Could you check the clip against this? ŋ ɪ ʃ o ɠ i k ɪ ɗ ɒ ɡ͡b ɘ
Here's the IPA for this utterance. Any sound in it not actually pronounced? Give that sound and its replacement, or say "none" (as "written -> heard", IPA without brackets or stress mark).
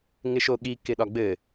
none